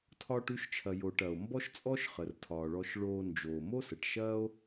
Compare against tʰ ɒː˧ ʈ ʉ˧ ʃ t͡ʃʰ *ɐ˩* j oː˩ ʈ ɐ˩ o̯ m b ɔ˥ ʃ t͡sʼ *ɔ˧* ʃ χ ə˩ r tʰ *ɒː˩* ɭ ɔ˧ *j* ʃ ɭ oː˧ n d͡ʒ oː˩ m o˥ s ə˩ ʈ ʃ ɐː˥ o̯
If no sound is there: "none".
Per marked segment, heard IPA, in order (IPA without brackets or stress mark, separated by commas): ɐ˩, ɔ˥, ɒː˩, none